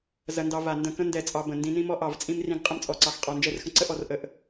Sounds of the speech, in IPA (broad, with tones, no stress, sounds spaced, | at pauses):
z ɐ˦ n d ɑ˦ v a˧˩ n d ə̃˧˩ k ə̃˦ n d ɛ˧˩ t͡sʼ ɑ˦ b ə̃˧˩ n d ĩ˦ n ĩ˦ m ɔ˦ ʔ ɑ˧˩ v t͡sʼ ĩ˦ m r ĩ˦ ɡ qʼ ə̃˦ m t͡sʼ ɔ˧˩ ǀ ɑ˧˩ x qʼ ɔ˧˩ n d͡ʒ ɛ˦ r x ə̃˦ ǀ ə˦ ʔ ɔ˦ r ʔ ə˧˩ ʔ